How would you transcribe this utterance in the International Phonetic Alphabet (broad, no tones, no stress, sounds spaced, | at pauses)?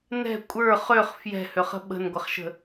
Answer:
n ɛ̤ kʷʼ ə˞ χ ø χ f j ɛ̤ h ø χ ə̤ ɓ ə̤ n ɡʷ ə χ ʃ ə̤